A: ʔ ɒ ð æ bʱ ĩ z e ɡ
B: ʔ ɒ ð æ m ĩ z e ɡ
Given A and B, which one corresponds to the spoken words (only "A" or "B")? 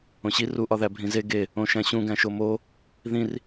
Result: A